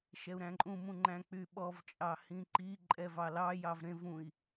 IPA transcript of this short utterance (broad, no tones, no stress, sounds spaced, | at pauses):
ʃ ɛ u̯ ɾ æ̃ ǃʼ ũ m ũ ŋ͡ǃ æ̃ k͡p y ɓ ɔ v t͡ʃʼ ɑ h ĩ ǃ i ǃʼ ɛ v ɑ l ɑ j ɑ v ɾ ẽ v ũ i̯